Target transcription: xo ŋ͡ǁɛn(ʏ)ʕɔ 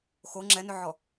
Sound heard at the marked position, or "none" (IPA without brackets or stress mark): ʏ